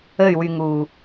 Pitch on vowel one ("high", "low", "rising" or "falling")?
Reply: falling